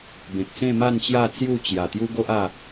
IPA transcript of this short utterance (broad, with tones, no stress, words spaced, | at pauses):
bẽ˨k̚sẽ˥˧ ma˥˧nt͡ɕja˥˧ t͡sju˥˧t͡ɕja˨˩ t̪ju˦ɡo˦ʔa˥˧